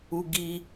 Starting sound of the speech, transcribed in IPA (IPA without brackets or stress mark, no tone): u